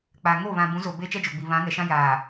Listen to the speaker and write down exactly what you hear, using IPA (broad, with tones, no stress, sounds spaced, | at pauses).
k͡p aː˨ ŋ o˦˨ β ã˨ b ũ˨˦ z o˨ b eː˦ t͡ʃ ɛ˦ d͡ʒ o˨ ɡ͡b i˨ β ã˨˦ ŋ ɛ˨ ʃ ã˦ j aː˨